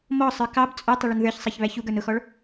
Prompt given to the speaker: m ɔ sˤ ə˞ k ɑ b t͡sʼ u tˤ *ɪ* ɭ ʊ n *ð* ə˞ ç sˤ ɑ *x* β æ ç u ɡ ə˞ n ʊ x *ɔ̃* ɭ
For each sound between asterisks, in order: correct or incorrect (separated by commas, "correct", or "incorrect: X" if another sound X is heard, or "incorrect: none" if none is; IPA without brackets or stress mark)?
correct, correct, incorrect: ç, incorrect: ɔ